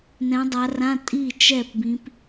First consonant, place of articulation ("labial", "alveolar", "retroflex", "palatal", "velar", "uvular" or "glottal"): alveolar